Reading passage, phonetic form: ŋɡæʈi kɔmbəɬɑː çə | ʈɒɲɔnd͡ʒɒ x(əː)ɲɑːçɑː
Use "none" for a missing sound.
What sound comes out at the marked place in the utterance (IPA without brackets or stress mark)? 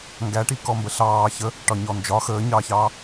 əː